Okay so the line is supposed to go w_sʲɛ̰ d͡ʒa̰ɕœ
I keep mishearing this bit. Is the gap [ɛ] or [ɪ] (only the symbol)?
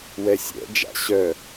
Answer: ɛ